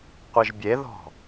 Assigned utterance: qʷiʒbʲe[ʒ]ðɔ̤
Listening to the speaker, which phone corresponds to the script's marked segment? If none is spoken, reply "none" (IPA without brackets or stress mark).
none